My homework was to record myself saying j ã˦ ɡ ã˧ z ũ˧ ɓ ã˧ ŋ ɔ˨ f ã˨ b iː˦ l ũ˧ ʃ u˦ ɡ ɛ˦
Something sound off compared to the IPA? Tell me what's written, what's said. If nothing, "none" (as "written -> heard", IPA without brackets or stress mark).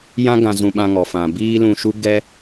none